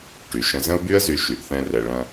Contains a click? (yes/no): no